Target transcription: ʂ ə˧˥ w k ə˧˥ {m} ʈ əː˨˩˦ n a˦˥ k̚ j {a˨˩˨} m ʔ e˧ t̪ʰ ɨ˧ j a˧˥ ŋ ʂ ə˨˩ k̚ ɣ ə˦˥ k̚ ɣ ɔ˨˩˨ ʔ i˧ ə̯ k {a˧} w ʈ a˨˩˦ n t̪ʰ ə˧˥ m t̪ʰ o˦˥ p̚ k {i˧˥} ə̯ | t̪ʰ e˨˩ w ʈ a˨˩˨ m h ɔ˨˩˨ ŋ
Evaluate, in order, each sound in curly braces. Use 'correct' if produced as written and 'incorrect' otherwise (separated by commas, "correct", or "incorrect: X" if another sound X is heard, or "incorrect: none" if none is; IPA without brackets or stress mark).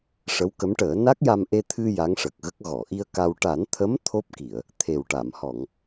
correct, incorrect: a˧, correct, incorrect: i˨˩˨